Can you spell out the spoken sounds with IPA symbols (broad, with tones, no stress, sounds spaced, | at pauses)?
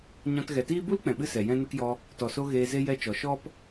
ɲ ɔ̃˧ t ɣ ɛ˨ t iː˦ b u˦ l k͡p ɛ̃˨ ɓ ɨ˧ s ɛ˨ j ɛ̃˧ n ə˧ k j ɔ˧ | t ɔ˨ s o˧ ɣ eː˧ z e˦ j ɛ˦ t͡ʃ ɔ˨ ʃ ɔ˦ p